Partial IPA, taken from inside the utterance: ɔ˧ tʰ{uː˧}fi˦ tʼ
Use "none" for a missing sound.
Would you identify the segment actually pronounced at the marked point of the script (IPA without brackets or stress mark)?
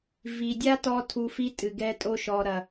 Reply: u˧